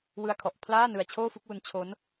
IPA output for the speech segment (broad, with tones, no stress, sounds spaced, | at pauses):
w ɯ˧ a̯ kʰ ɔ˨˩ ʔ pʰ l aː˥˩ n ɯ˧ a̯ t͡ɕʰ oː˥˩ f u˥˩ k̚ w u˧ n t͡ɕʰ o˦˥ n